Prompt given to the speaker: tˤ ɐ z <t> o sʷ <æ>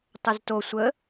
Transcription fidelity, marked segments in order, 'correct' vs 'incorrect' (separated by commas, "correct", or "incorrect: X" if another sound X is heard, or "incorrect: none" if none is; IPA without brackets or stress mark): correct, incorrect: ə